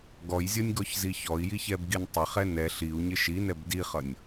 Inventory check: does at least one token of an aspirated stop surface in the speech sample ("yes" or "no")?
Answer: no